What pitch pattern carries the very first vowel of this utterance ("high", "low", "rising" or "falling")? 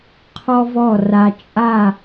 high